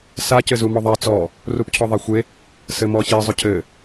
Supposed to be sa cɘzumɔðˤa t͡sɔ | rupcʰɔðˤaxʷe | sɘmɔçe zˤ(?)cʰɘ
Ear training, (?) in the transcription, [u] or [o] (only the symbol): o